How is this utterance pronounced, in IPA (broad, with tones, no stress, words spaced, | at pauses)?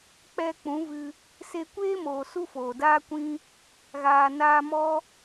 k͡pɛ˧k͡pũ˨˦vɨ˧ | se˧kʷeː˦moː˨ su˦foː˨daː˦kʷĩ˦ | ɣaː˨ naː˧mɔ˦